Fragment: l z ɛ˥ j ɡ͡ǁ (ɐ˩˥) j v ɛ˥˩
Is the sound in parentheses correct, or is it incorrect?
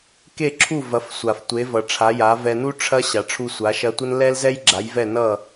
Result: incorrect